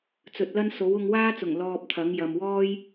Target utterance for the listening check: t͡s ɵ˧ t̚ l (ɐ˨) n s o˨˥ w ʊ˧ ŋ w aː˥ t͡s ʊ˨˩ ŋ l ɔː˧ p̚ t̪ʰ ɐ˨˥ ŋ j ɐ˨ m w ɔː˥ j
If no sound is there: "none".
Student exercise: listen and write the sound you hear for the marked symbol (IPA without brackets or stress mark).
ɐ˥